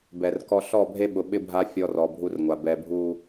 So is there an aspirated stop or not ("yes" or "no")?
no